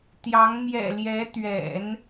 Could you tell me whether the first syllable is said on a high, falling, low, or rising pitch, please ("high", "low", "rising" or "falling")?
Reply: rising